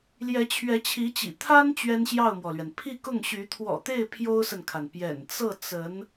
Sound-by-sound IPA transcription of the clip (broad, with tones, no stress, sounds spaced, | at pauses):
l j ɛ˧˥ t͡ɕʰ ɥ ɛ˧˥ t͡ɕʰ i˧˥ t͡ɕ ḭ˨˩ t̪ʰ a˥ n t͡ɕ ɥ ɛ˥ n ɕ j ɑ˥˩ ʊ̯ m w ɔ˩ l ɥ ɛ˩ n pʰ i˥˧ k ʊ˥˩ ŋ ɕ y˧˥ t̪ʰ w ɔ̰˨˩ t̪ e˥˩ ɪ̯ pʰ j o˥ ʊ̯ s ə˨ n kʰ a˩ n p j ɛ̰˨˩ n t͡s ɤ˥˩ t͡s ə˧˥ n